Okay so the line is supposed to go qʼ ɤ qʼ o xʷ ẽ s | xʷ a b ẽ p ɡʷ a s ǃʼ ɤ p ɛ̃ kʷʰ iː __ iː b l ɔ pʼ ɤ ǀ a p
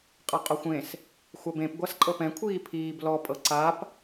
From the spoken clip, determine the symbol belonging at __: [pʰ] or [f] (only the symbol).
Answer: pʰ